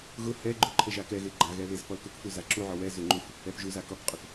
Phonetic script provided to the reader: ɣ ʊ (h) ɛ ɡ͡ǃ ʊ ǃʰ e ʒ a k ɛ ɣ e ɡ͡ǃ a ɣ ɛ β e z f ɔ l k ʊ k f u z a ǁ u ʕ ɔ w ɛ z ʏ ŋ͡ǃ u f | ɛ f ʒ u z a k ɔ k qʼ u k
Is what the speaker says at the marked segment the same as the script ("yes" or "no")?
yes